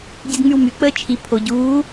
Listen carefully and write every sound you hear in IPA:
ɟ e d ŋ͡m y w m y k͡p əː t͡ʃʰ i pʰ o ɟ uː

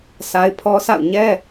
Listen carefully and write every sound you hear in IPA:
sʰ a˦ ɪ̯ pʰ ɔ˦ sʰ a̰˦˨ ʊ̯ ɲ ɛ˦

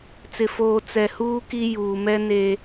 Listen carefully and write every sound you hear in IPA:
t͡s ɪ˨ f oː˨ t͡s ɛ˨ h uː˦ k i˦ j uː˨ m ɛ˦ n e˦

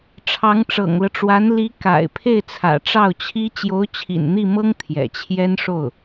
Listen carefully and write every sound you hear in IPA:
ʈ͡ʂʰ ɑ˧˥ ŋ ʈ͡ʂ ɤ̰˨˩ ŋ l ɤ˦ ʈ͡ʂ w a˧˥ n l i˧˥ k a̰˨˩ ɪ̯ pʰ e˥˩ ɪ̯ t͡sʰ ä̰˨˩ ʈ͡ʂ ɑ˥˩ ʊ̯ t͡ɕʰ i˥ t͡ɕ j o˧˥ ʊ̯ t͡ɕʰ ḭ˨˩ n n̪ i˥˩ m ɤ˥ ŋ t̪ʰ j ɛ̰˨˩ t͡ɕʰ j ɛ˥ n ʂ o˥˩ ʊ̯

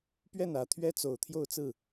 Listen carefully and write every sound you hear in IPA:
p ɥ ɛ˥˩ n ä˨˩ t̪ʰ ɥ ɛ˥ t͡s o˨˩ ʊ̯ t̪ʰ j o˥˧ ʊ̯ t͡s ɹ̩˥˩

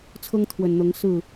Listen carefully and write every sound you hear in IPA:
t͡sʰ ɤ˦ ŋ t̪ʰ w ə˨˩ n n̪ ɤ˨˦ ŋ s ɹ̩˥˨

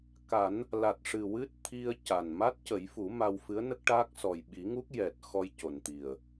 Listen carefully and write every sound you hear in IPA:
k a˨˩˦ n | l a˨˩ t̚ ʂ ɨ˨˩ w ɨ˦˥ t̚ t̪ʰ i˧ ə̯ c a˨˩ n m a˦˥ t̚ c ə˨˩˦ j f u˨˩˦ m a˧ w f ɨ˧˥ ə̯ n ə˦˥ k̚ ʈ aː˦˥ k̚ s ɔ˨˩ j ɓ i˨˩˦ ŋ u˦˥ k̚ j ɛ˨˩ t̚ x ɔ˧ j c o˨˩ n t̪ i˨˩ ə̯

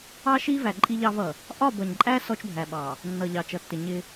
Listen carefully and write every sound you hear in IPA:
ɑ˦ ʃ i˦ v æ˨ ǃʼ i˦ ʎ ɑ˦ v ʌ˨ | ʔ ɒ˦˨ b ʌ˨ ɲ ǃʼ æ˦ s ɔ˦ t͡ʃ bʱ æ˨ ɓ ɑ˨ | nː ʌ˨ ʎ ɑ˨ t͡ʃ ʌ˨ tː ɪ˨ ɲ ɪ˦

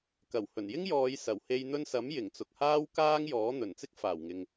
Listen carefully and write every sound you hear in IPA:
k ɐ˨˩ w h ɵ˨˩ n j ɪ˥ ŋ j ɔː˨˧ j s ɐ˨˩ w h e˧ j n̪ ɵ˧ n s ɐ˨˥ m j ɪ˨˩ ŋ t͡s ʊ˨ k̚ h aː˥ w k aː˥ ŋ j ɔː˨˥ n̪ ɵ˨˩ n t͡s ɪ˥ k̚ f aː˨˩ w ŋ ɪ˨ ŋ

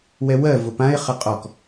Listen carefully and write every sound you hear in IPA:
w ɛ w ɜ v ʊ p ã ɪ̯ χ ə qʼ ɔ k

